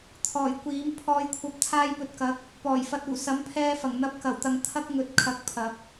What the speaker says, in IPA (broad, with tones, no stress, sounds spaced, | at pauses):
t̪ʰ ɔː˨˩ j kʷ iː˨˥ m pʰ ɔː˧ j kʷʰ ɐ˧ p̚ t̪ʰ aː˧ j p ɵ˨ t̚ k ɐ˨˥ k̚ | p ɔː˨˩ j f ɐ˨ t̚ uː˨˩ s ɐ˨˥ m pʰ ɛː˧ f ɐ˨˩ ŋ n̪ ɐ˨˥ p̚ k ɐ˨˩ w t̪ ɐ˨ ŋ t̪ʰ ɐ˥ k̚ ŋ ɵ˨˥ t̚ kʰ ɐ˨ k̚ pʰ ɐ˨ p̚